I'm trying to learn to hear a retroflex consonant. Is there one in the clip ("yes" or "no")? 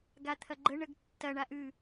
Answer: yes